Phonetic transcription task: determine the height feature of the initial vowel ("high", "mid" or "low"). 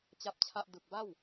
low